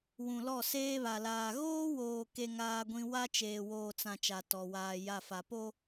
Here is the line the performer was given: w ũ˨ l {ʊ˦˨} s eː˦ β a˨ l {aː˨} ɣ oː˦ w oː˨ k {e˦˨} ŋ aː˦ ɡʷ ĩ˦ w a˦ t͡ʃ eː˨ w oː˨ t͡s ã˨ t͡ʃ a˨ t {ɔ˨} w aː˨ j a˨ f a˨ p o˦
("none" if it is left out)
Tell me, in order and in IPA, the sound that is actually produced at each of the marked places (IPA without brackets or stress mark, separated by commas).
ɔ˦˨, aː˨, e˦, ɔ˨